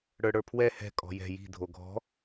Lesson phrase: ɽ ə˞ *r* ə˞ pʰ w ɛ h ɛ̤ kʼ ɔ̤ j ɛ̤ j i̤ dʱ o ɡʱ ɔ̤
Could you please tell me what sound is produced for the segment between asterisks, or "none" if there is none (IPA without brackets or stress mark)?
ɽ